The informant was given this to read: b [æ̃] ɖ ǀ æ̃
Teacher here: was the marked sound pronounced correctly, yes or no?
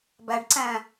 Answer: no